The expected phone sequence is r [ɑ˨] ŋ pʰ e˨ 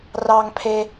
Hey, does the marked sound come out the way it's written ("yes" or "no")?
yes